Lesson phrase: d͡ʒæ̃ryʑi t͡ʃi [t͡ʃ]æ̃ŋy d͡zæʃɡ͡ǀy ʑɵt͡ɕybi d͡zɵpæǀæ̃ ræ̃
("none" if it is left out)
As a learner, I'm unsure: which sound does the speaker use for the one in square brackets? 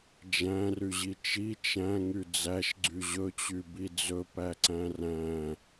t͡ʃ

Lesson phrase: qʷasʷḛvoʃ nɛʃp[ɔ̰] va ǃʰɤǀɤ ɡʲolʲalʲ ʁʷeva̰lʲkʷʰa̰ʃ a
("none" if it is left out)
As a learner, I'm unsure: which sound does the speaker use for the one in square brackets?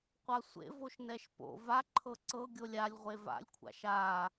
o̰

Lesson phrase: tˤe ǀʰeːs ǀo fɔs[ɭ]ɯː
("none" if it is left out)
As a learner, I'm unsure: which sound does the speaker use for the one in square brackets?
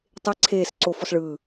ɭ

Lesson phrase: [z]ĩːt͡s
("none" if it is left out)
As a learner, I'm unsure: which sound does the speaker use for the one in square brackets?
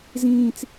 z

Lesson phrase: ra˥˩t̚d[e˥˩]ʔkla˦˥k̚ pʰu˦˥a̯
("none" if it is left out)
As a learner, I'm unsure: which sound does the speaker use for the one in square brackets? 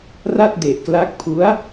e˨˩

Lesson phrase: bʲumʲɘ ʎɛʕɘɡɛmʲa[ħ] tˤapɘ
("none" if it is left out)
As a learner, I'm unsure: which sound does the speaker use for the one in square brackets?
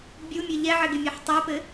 ħ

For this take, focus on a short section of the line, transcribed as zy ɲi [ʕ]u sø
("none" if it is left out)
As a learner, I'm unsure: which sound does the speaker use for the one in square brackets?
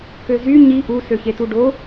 ʔ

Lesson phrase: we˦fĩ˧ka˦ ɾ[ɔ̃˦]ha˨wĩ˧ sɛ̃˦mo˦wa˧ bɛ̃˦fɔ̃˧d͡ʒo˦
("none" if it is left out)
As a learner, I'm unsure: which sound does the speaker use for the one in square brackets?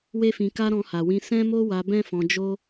ɔ̃˧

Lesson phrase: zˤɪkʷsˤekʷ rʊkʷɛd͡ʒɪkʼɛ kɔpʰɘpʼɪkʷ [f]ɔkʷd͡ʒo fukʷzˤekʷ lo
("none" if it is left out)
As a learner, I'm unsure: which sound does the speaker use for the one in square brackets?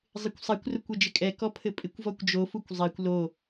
v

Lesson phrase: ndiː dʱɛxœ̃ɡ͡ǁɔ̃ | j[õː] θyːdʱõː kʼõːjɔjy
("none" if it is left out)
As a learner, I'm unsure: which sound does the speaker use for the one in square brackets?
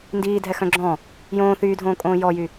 õː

